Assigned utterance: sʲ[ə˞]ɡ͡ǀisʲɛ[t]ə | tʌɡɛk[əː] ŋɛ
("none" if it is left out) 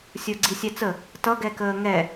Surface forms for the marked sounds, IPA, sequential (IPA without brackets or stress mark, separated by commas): ə˞, t͡s, əː